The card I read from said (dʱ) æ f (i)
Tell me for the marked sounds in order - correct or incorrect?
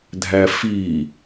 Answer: correct, correct

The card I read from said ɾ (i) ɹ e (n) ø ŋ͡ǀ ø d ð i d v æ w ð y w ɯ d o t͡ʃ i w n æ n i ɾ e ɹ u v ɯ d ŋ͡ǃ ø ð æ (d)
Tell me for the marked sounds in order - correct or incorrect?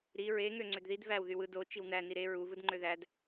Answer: correct, incorrect: ŋ, correct

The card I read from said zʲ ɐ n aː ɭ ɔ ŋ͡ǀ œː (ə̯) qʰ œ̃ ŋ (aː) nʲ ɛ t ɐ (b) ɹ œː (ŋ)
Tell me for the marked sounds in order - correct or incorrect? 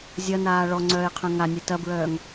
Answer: incorrect: ɪ̯, incorrect: a, correct, correct

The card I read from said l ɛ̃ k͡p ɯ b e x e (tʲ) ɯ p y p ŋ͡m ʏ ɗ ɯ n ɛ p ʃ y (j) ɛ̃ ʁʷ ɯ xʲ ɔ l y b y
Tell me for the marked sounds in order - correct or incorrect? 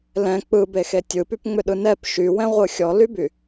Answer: correct, incorrect: w

